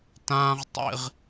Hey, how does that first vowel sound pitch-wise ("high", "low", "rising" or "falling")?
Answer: low